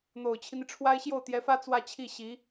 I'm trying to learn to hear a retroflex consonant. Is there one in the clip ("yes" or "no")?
yes